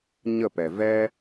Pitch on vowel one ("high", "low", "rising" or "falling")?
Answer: falling